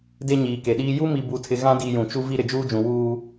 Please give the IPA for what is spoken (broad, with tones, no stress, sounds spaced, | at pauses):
d e˦ ɲ iː˨ k e˨ ɗ iː˦ j u˦ m i˨ b u˨ tʰ ɪ˨ ɣ ã˦ d i˨ j ũ˨ t͡ʃ u˦ v i˦ ɾ ɪ˨ d͡ʒ uː˦ d͡ʒ ũ˨ w uː˦